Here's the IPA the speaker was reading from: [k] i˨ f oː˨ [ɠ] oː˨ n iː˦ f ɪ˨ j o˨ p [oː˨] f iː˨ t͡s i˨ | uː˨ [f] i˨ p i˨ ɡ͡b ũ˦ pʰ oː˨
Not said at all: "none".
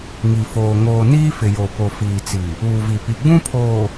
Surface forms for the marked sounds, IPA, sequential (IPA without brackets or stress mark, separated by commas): ŋ, ŋ, o˨, v